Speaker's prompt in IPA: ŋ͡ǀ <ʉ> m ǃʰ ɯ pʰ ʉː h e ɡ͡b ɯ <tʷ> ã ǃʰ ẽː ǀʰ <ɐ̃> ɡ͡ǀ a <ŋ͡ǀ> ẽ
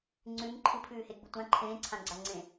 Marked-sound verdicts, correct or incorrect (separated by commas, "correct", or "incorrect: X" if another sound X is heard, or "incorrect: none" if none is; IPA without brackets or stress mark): correct, correct, incorrect: ã, correct